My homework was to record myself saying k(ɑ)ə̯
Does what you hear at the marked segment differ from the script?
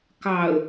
no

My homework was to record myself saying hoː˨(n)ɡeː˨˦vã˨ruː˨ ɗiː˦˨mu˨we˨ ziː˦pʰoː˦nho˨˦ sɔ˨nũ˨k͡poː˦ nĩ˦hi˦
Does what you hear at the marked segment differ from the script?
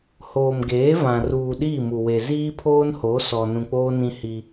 yes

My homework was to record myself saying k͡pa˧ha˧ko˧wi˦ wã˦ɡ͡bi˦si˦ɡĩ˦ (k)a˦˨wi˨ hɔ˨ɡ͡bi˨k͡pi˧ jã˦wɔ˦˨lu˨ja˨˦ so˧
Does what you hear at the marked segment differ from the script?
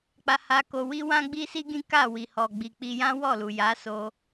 no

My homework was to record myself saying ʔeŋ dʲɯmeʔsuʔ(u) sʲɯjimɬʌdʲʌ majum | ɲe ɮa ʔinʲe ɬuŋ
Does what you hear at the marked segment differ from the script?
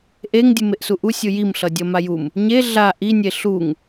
no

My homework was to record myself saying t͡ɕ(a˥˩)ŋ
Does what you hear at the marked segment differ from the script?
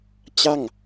no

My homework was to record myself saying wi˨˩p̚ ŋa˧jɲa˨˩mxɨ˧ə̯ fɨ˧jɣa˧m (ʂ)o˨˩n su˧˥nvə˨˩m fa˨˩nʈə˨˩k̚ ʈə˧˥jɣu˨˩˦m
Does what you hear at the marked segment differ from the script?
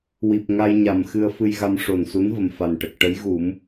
no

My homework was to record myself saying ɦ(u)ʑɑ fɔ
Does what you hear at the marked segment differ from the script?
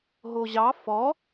yes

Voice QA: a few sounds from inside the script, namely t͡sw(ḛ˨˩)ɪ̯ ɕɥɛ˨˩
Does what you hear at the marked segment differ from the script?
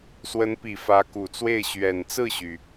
yes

